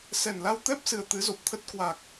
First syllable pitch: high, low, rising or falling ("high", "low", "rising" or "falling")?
low